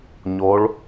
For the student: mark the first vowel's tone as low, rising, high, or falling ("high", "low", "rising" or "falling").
rising